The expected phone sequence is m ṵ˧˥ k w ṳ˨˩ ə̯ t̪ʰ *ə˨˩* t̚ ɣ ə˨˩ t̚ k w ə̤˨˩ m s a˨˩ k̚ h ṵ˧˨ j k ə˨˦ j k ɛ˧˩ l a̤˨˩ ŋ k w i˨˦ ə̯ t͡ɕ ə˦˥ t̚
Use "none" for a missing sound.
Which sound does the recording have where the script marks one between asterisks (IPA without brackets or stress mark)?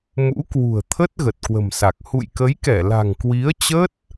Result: ə˦˥